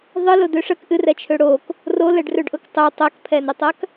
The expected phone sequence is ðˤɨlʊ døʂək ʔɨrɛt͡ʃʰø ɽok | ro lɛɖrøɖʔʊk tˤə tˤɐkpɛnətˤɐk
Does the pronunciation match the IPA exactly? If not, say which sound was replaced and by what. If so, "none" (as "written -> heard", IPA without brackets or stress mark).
p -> pʰ